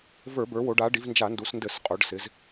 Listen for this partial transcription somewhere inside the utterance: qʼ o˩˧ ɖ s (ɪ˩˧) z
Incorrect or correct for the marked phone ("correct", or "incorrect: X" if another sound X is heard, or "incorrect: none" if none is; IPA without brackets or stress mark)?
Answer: correct